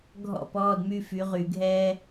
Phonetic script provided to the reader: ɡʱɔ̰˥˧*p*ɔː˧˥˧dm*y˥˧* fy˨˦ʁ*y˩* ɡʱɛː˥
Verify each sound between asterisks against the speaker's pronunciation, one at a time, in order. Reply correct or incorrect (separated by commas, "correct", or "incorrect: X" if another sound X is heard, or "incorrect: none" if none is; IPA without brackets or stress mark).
correct, correct, incorrect: y˧˩˧